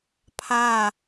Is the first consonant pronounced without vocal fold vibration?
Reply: yes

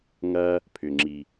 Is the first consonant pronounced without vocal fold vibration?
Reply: no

